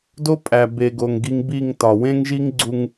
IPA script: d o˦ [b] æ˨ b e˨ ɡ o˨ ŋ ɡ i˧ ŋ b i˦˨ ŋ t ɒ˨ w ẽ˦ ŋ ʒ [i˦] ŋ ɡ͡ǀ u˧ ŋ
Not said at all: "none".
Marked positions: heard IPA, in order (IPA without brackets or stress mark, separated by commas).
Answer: pʼ, i˦